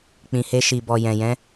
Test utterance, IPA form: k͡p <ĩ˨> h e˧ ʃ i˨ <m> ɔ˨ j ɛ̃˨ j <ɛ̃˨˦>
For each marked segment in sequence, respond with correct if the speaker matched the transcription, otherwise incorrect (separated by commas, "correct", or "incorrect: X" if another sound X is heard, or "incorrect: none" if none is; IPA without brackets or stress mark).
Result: correct, incorrect: b, correct